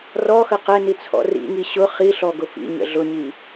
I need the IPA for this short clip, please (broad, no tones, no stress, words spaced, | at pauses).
rɔxə qɛni t͡sʰɔ̰rḭŋi ɕʊ χiɬɔ ɡʊfḭɲə̰ ɮʊɲi